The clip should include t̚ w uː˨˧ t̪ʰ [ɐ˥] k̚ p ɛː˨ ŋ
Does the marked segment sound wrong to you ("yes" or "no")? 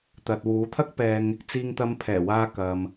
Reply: no